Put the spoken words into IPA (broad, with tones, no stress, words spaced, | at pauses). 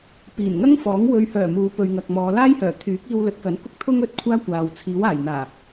piː˨˩nŋɐ˥ŋfɔː˨˥ŋ wɵ˨ɥhœː˨˩ muː˨˧pɵ˨ɥŋɐ˨k̚ mɔː˨˧ laː˥jhœː˨˩ t̪ʰyː˨˥k̚ iː˧wlɵ˨˥t̚kɐ˨˥n kʊ˧k̚t̪ʰʊ˧ŋ ɵ˨˥t̚kʷʰaː˥kʷaː˨w t͡sʰiː˨˥waː˨˩j n̪aː˨˩